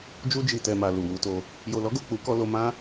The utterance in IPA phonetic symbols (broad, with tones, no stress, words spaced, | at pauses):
d͡ʒu˧d͡ʒi˨ tɛ˨ma˨ lu˨wu˧to˧ | jo˨lɔ˨˦ɡo˦˨ k͡pu˨˦kɔ˧lo˧ mã˦